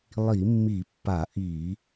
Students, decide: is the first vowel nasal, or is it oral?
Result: oral